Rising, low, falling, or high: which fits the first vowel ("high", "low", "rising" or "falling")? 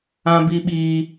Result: high